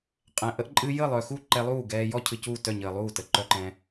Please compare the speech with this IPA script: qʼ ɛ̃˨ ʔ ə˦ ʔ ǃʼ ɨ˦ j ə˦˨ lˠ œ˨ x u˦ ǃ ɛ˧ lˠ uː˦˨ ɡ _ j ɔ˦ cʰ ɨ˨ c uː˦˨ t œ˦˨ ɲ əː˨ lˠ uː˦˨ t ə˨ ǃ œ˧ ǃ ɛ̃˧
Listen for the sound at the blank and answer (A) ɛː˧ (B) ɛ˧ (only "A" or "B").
A